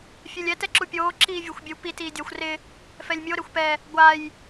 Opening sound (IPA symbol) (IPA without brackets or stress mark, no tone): fʲ